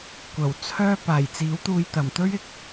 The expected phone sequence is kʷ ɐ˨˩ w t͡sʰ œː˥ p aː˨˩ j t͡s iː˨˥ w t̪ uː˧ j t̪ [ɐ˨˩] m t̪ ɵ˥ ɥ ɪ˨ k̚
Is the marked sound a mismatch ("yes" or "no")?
no